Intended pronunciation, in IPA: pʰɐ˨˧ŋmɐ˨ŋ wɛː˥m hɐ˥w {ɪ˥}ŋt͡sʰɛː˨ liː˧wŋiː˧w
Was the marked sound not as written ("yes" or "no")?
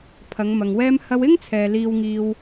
no